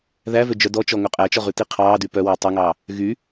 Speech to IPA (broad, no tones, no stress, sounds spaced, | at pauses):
ð æ v ø d͡ʒ œ d ɔ t͡ʃ ɔ ŋ ɵ qʼ æ t͡ʃ ɔ ʁ ʉ t i qʰ ɑː d y p œ w œ tˤ ɛ ŋ ɑː | ɣ y